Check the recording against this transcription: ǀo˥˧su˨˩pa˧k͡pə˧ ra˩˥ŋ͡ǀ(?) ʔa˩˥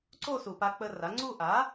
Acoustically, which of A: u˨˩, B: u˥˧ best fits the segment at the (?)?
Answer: B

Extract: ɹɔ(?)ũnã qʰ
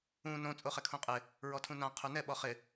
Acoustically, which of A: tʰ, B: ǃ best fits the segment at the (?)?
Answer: A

